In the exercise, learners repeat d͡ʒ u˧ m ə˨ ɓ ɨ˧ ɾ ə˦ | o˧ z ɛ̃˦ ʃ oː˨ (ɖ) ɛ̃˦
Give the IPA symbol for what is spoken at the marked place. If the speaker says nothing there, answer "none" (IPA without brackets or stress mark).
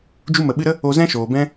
b